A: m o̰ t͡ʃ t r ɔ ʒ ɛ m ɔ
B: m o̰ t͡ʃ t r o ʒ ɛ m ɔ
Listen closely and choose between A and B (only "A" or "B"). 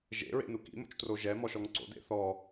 B